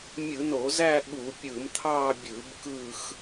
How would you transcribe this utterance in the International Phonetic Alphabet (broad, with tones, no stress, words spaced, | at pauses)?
mʲɯ˧˩˧no˧˩˧zæ˦˨ ɠu˧˩˧ pʲɯ˧˩˧mt̪ʰɑ˦˨bʲɯ˧˩˧b kɯ˦˨x